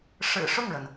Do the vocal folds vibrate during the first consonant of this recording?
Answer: no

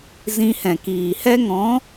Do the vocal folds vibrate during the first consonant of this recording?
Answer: yes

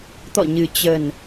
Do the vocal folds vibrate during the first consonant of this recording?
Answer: no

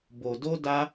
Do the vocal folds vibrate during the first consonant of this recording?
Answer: yes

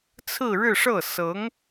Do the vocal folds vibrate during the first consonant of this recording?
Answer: no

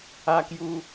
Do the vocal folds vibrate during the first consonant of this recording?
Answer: no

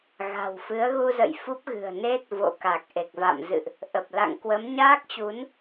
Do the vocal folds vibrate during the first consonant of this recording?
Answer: yes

